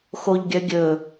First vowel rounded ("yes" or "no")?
yes